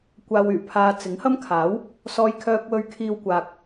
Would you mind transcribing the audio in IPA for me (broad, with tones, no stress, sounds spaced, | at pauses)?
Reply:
kʷ aː˧ w yː˨˩ pʰ aː˧ t͡s ɪ˨˥ ŋ h ɐ˥ m kʰ aː˨˥ w | s ɔː˥ j kʰ œː˥ k̚ w ɵ˥ ɥ kʰ iː˥ w kʷ aː˧ k̚